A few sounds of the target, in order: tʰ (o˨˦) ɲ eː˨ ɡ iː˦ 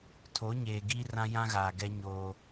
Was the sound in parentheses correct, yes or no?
yes